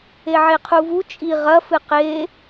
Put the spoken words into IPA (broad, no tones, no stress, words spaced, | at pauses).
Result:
eʕeqʰuvu t͡ʃʼi ʁɐfɨ qe